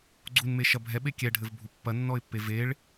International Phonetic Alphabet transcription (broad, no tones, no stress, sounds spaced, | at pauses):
ɡ͡ǀ u n m e ʃ ɐ bʱ ɛ ɓ e kʲ ɛ ɖʱ ɘ v bʱ u pː ɐ nː ɔ ɪ̯ pː e v e ɭ